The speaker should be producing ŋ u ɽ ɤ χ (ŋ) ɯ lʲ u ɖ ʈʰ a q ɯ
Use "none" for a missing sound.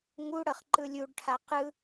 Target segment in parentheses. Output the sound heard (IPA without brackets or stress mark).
ǃ